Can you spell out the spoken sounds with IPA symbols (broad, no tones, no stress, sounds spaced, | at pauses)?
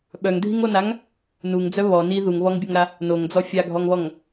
ɓ œ ŋ dʱ i ŋ o n a ŋ | n u ŋ d͡z œ β ɔ n i ð u ŋ β ɔ ŋ bʲ o ŋ ɾ a | n o ŋ d͡z ɔ fʲ a ɡʱ ɔ ŋ β ɔ ŋ